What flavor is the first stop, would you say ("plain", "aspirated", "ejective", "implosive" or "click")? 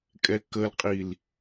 ejective